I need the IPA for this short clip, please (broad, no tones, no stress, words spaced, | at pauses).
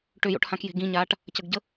ʈʏjo̰ʈhãkje̤ ɡĩɲaːʈ | cəɡɟə